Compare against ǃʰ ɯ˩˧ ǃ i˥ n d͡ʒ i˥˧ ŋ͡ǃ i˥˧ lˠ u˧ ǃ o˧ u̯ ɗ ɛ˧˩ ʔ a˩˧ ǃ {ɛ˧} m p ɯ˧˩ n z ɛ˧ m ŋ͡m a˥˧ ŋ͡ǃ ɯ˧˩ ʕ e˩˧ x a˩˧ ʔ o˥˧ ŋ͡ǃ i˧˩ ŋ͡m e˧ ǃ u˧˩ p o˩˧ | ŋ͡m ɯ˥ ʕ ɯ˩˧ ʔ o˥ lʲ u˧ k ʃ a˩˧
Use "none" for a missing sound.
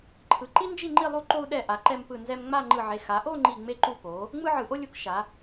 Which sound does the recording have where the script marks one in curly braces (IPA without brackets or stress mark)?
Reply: ɛ˧